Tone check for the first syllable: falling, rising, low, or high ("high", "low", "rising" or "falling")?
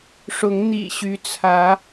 rising